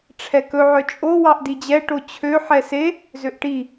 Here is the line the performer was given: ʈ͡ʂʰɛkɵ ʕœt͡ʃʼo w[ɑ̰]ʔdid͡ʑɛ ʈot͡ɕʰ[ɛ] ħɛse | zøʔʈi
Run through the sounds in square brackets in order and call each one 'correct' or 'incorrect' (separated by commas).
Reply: incorrect, incorrect